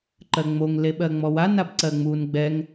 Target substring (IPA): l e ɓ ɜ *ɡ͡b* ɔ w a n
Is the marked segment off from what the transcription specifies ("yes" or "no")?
yes